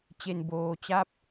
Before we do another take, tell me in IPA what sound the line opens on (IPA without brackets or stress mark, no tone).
t͡ɕ